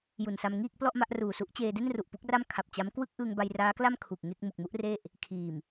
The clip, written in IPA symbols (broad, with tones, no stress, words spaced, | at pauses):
ju˨˩nsa˧mŋiː˥˩k̚ plɔ˥˩ʔma˥˩ʔruː˨˩su˦˥ʔ t͡ɕeː˧de˥˩nru˨˩ʔ pu˦˥k̚ra˥˩mkʰa˨˩p̚ t͡ɕa˦˥m kwɯ˥˩k̚ʔɯː˧ŋ ba˧jraː˦˥kla˥˩m kʰu˨˩k̚ŋe˥˩k̚ mu˨˩k̚mu˦˥ʔ re˥˩ʔ | kʰiː˨˩m